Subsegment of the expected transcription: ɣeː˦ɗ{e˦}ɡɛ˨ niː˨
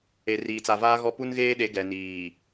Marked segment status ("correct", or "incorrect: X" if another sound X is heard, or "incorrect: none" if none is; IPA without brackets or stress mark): incorrect: e˨˦